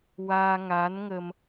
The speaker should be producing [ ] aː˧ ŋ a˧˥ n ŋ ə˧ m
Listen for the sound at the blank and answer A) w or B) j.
A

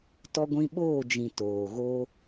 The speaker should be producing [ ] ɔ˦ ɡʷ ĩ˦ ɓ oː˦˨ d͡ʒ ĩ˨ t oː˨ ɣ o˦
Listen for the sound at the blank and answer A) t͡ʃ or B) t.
B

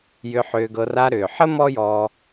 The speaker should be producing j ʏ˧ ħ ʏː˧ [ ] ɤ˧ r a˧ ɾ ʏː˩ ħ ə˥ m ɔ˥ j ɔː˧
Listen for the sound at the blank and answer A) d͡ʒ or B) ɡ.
B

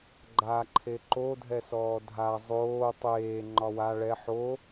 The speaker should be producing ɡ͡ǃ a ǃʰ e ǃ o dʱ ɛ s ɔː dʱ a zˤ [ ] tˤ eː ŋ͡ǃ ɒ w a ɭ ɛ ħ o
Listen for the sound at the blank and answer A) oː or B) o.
A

